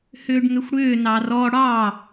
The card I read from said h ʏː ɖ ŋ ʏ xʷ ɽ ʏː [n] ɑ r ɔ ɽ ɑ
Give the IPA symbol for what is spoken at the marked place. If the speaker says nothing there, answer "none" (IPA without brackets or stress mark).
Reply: n